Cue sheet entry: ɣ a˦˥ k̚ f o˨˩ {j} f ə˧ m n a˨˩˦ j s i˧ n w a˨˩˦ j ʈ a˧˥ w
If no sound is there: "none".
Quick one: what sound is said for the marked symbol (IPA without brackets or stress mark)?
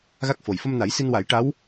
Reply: j